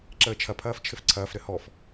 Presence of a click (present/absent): present